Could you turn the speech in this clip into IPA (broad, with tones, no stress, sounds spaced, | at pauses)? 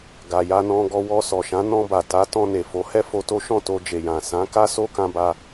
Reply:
ɡ a˨ j a˧ n ɔ̃˧ ɡ ɔ˧ w ɔ˧ s ɔ˨ ʃ ã˨˦ n ɔ̃˧ b a˨ t a˨˦ t ɔ̃˧ n e˨ f o˨˦ h ɛ˦ f o˧ t o˦ ʃ ɔ̃˦˨ t o˧ d͡ʒ e˨ j ã˨ s ã˨˦ k a˦ s o˦ k ã˧ b a˧